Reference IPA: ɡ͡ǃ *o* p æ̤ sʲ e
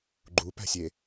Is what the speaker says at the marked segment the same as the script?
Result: no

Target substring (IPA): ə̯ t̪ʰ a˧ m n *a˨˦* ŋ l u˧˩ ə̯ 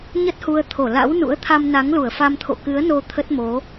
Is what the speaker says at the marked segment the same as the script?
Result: yes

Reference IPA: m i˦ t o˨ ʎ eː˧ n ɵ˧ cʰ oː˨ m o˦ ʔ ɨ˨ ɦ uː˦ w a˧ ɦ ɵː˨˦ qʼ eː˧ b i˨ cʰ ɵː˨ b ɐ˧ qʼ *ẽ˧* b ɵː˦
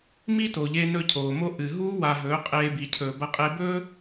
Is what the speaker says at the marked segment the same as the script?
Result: no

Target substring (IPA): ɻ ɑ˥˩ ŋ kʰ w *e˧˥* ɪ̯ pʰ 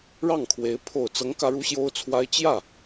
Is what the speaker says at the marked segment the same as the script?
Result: yes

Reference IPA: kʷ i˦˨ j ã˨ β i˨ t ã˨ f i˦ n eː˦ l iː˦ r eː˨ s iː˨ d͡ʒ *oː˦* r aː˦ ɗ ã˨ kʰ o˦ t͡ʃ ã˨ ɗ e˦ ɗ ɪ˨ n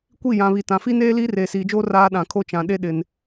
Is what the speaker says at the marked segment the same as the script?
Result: yes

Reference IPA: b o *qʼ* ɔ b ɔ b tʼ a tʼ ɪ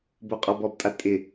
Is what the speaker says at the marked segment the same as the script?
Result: yes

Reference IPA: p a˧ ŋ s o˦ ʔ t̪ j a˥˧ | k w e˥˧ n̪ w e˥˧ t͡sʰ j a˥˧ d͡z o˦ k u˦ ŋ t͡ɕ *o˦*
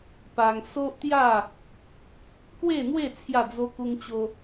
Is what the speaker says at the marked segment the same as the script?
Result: yes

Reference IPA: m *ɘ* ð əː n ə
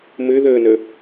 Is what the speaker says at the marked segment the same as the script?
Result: yes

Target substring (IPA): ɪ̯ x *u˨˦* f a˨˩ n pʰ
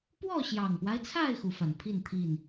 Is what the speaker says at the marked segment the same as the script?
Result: yes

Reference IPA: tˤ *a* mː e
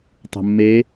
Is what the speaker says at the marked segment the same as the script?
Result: no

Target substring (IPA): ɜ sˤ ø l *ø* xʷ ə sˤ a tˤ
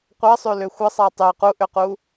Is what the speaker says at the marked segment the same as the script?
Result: yes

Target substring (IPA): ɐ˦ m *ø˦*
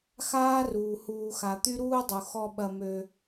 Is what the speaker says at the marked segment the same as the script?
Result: yes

